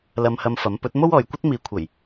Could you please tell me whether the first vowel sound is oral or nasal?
oral